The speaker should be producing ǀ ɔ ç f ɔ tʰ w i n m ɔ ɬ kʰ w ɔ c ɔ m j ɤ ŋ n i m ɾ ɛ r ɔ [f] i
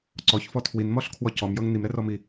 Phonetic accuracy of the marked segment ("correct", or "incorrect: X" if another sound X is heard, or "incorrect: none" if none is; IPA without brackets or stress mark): incorrect: m